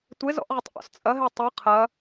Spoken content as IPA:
tʷ e z ɔ̰ ʔ ʁ ɘ tˤ ʔ ɔ̰ s t͡sʼ ɐ ɦ e tˤ ɨ qʰ ɐ

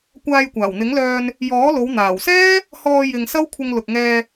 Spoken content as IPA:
kʷ aː˧ j kʷ aː˨˩ w n̪ ɪ˨˥ ŋ l œː˧ n | j ɔː˨˥ l o˨˧ w n̪ aː˨˩ w s ɛː˥ | h ɔː˧ j ɪ˨ ŋ s ɐ˥ w kʷʰ ɪ˧ ŋ l ʊ˨ k̚ ŋ ɛː˧

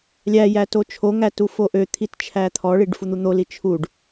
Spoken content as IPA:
lʲ æ j æ t o t͡ʃʰ o ŋ æ t u f o ʔ ø t̪ʰ i t t͡ʃʰ æ t̪ʰ ɔ ɭ i ɖ f u n̪ u n̪ o l i t͡ʃʰ u ɖ

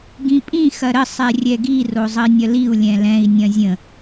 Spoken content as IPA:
ɡ ĩ pʼ ĩ x ɐ ɾ ə sˤ ɛ rʲ ɛ ɡ i r o zˤ ə i̯ nʲ ɐ l i u̯ lʲ ɛ̃ l ɛ̃ i̯ nʲ ɐ̃ zʲ ə̃

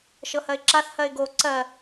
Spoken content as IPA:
ʃ ɤ h ɜ ɪ̯ ǁ a θ h ɜ ɪ̯ ɡ o ǀ ɜ

